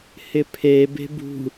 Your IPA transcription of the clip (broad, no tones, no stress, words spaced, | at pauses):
hɪpʰe be̤bṳ